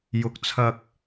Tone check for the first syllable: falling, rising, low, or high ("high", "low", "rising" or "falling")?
rising